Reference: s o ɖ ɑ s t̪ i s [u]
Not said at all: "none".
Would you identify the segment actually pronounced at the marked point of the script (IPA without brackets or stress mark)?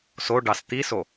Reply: o